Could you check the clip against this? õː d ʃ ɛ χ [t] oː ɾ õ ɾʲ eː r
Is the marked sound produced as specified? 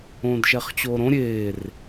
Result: no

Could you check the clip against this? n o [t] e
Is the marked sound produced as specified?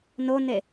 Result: no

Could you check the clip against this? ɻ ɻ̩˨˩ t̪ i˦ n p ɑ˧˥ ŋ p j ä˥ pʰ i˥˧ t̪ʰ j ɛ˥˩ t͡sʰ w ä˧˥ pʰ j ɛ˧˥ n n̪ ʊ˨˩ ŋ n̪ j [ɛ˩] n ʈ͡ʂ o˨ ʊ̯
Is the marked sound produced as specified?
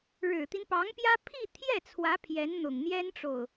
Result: no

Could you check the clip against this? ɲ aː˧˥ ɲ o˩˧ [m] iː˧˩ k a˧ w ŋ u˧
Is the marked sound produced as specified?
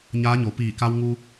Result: no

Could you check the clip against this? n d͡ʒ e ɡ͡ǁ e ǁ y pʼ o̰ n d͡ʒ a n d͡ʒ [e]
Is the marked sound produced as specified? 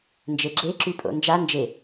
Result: yes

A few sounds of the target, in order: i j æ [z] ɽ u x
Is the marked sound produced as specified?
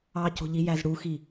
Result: yes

